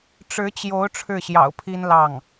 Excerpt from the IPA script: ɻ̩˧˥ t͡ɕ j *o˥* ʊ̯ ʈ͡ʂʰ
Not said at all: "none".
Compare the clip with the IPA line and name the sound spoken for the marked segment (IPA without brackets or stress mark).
o˧˥